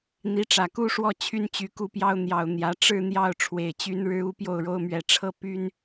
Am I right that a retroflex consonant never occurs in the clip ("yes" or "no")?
no